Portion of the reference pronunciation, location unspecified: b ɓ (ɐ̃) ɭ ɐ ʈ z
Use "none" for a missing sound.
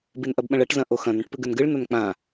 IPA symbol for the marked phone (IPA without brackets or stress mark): ɐ̃